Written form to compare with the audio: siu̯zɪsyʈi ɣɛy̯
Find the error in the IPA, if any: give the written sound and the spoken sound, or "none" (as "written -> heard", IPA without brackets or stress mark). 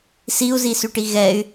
ɪ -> i